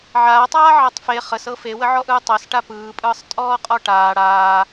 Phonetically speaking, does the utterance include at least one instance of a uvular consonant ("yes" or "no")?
yes